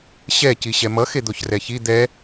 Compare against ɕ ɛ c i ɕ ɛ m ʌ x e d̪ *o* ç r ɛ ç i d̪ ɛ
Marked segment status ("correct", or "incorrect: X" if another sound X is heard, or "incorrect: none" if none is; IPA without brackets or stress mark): correct